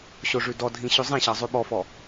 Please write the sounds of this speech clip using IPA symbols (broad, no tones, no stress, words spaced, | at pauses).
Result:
ɕoʐʉdɔdʱĩ ɕʉzˤĩɕɑ zˤʉɓɔfɔ